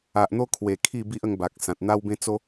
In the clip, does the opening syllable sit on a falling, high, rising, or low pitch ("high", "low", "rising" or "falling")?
low